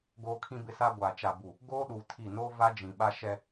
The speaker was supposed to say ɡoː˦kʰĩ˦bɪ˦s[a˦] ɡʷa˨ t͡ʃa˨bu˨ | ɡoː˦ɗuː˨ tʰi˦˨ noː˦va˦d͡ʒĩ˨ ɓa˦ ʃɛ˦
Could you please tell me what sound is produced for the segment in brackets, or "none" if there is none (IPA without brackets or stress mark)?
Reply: a˦